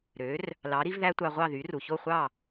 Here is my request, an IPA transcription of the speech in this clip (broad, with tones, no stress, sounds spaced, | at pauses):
ɾ ø˩˥ r | l ɑ˩˥ ɾ i˩˥ v ð æ˥ tʷ ɑ˧ ʁʷ ɑ˥˩ ð y˩˥ r u˩ ç o˥˩ χʷ ɑ˥˩